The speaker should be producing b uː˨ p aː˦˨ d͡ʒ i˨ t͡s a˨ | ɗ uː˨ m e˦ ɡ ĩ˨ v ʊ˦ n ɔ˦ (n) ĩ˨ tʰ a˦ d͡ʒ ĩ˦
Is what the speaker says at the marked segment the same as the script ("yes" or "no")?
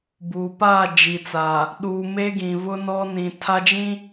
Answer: yes